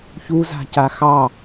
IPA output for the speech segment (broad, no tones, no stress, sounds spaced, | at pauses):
ç u z a̤ c a x ɑ